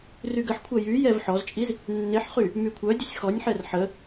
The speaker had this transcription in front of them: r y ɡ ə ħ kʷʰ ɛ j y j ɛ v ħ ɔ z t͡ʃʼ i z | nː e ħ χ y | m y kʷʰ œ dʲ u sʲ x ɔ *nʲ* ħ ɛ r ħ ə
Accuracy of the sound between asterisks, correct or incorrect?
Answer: correct